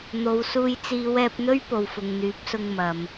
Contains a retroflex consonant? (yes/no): no